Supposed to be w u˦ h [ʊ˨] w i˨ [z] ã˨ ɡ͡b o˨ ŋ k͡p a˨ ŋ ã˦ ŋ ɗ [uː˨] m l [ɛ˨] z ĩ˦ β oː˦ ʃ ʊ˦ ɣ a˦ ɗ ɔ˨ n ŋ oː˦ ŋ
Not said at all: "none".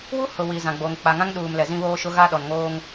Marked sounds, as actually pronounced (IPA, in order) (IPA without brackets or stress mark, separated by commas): ʊ˨, z, uː˨, ɛ˨